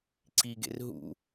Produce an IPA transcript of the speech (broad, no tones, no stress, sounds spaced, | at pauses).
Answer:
ǀ i ɡ ḛ r ɦ ṵ